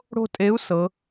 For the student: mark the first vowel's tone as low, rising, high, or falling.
high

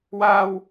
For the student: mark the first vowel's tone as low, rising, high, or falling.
high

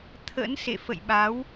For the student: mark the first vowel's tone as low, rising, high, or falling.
rising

